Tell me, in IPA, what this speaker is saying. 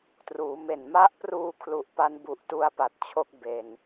t r uː˩˦ m e˨˩ n m a˦˥ ʔ p r uː˧ kʰ l u˨˩ ʔ p a˦˥ n b u˨˩ ʔ t u˧ a̯ p a˨˩ t̚ t͡ɕʰ o˦˥ k̚ b e˨˩ n

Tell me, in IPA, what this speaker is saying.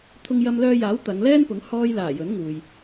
t̪ʰ ʊ˧ ŋ j ɐ˧ m l œː˧ j aː˨˥ w t̪ ɐ˨˧ ŋ l ɛː˥ n p ʊ˨˥ ŋ h ɔː˧ j l aː˨˩ j ɵ˨˥ n ŋ uː˨ j

